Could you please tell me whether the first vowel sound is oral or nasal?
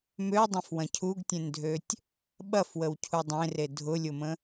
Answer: oral